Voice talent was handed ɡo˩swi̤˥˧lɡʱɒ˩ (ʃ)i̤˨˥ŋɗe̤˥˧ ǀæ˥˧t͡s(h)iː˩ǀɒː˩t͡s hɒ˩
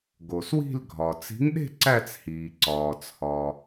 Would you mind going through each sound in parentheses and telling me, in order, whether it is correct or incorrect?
incorrect: t͡s, correct

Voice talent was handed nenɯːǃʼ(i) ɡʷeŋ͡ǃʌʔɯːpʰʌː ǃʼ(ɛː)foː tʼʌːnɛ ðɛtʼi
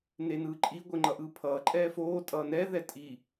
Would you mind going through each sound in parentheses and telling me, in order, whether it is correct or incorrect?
correct, correct

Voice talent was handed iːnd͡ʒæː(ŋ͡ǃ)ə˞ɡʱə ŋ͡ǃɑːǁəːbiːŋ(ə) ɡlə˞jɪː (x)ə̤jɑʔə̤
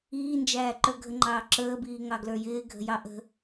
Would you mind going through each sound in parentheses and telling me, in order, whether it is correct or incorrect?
incorrect: ǃ, incorrect: ɑ, incorrect: ɡʱ

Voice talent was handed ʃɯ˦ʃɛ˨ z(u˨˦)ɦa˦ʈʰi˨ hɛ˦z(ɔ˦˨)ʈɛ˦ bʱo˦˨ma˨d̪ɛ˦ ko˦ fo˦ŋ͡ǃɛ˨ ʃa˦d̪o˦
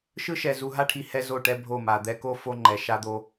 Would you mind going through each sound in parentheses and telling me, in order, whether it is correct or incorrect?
incorrect: u˨, incorrect: o˦˨

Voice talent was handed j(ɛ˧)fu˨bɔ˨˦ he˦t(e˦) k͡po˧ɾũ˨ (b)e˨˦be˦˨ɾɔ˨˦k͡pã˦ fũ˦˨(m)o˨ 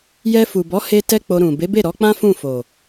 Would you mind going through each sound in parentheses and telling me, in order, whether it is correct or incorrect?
correct, incorrect: ɛ˦, correct, incorrect: f

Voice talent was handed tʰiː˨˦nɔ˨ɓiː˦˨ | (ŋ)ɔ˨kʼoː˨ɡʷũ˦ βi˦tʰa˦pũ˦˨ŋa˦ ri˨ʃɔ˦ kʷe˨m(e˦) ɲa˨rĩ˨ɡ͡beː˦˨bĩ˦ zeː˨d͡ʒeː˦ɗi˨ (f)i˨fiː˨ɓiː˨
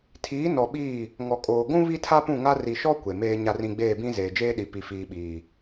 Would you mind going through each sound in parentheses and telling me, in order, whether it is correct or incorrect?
correct, incorrect: eː˦, incorrect: p

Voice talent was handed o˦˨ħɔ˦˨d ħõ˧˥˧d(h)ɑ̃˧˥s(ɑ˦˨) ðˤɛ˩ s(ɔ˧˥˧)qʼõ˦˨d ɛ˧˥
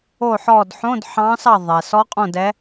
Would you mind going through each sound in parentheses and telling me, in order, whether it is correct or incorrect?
incorrect: ħ, correct, incorrect: ɔ˧˥

